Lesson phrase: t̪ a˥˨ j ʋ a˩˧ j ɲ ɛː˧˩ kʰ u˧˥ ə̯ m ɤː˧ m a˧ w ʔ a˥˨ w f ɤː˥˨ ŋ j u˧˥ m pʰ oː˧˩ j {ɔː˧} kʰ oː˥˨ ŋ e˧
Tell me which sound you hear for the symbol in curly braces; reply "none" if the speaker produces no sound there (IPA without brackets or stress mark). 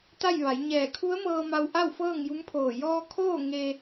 ɔː˧